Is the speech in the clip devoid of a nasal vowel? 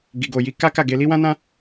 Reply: no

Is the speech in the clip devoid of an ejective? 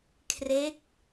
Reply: yes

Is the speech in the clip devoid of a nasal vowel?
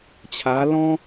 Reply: no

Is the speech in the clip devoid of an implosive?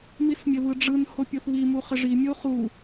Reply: yes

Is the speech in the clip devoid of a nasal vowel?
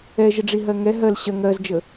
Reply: yes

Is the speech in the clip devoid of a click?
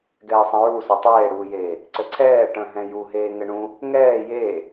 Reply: no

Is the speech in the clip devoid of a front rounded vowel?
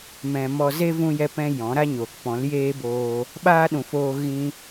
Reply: yes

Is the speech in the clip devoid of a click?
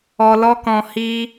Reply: yes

